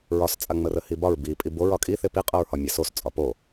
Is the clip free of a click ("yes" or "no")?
yes